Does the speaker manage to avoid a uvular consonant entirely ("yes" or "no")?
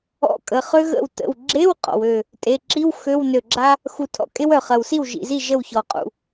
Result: no